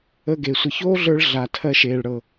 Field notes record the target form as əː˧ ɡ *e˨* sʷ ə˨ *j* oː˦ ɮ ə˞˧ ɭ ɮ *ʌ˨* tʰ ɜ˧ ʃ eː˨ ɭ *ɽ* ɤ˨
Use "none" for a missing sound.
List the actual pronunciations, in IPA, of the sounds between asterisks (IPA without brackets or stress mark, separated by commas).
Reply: e˨, ç, a˨, ɽ